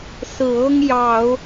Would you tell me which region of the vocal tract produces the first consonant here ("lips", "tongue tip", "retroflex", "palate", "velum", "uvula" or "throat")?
tongue tip